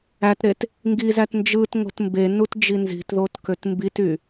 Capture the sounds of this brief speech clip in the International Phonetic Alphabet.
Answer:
ætɾet | ŋɡizæt nd͡ʒɯtŋo̤t mbenutd͡ʒi nzi̤tðotkøt mbity

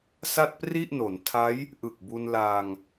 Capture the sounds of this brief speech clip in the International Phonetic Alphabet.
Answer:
sa˥˩t̚pri˥˩ʔno˩˦n tʰa˦˥j | ʔɯ˨˩k̚bu˧nlaː˧ŋ

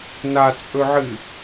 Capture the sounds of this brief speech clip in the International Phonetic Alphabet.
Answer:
nat͡sʼɵʕɨ

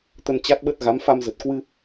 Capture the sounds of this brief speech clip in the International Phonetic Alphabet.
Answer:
t̪ə˧n t͡ɕa˦˥t̚ɓə˦˥t̚ ɣa˨˦mfa˧mzə˨˩t̚ kwɨ˧

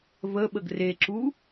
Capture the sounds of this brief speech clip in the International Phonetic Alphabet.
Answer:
və ɓəɡreǁu

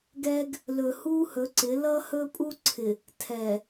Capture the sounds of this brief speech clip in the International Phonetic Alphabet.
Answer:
ɡɛ˦ɡ | lɵ˨hu˦hɵ˨˦ǀɪ˨˦ lʌ˦hɵ˦pʼu˦ ǀʰɪ˨ | tʰɛ˨

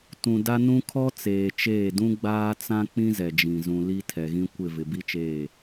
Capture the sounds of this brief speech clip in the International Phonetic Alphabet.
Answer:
tũ˨da˦nũ˦ kʰɔ˦t͡seː˨t͡ʃeː˦˨dũ˦ ɡ͡baː˦t͡sã˦ k͡pĩ˦zɛ˨d͡ʒĩ˨ zũ˨ li˦tʰɛ˨ɣĩ˦ kʷɪ˦˨vɪ˨ bi˦t͡ʃeː˦˨

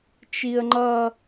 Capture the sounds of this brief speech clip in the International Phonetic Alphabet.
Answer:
t͡ʃiə̯ŋ͡ǃʌ

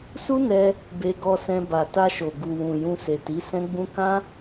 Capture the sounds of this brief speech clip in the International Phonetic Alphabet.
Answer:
su˦nɛ˧ | be˧ɡɔ˧sɛ̃˧ ba˨ta˧ʃo˨ ɡu˨wũ˨ jũ˧se˨ti˨˦ sɛ̃˦ɡ͡bũ˦ kã˦

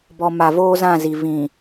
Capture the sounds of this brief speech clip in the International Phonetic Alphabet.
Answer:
bɔ˨ ma˨voː˦zã˦˨zi˨ vĩ˨

